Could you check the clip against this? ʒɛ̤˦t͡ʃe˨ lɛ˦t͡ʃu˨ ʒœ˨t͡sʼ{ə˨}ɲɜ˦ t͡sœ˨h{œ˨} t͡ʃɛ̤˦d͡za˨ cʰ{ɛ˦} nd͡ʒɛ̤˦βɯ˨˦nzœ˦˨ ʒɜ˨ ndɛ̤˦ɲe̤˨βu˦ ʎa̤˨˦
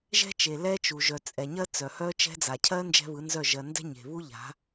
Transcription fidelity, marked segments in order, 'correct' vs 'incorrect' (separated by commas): incorrect, incorrect, incorrect